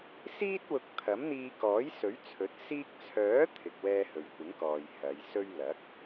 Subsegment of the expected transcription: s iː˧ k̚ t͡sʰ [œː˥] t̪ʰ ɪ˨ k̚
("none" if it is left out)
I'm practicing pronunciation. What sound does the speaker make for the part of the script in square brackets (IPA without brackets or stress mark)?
œː˨˥